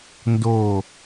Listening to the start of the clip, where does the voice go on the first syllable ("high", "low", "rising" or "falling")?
low